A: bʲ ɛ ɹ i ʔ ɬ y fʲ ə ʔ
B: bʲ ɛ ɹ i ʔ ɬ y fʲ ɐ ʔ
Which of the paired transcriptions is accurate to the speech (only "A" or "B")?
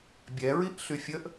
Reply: A